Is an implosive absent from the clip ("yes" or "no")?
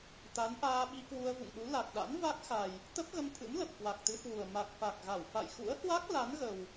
no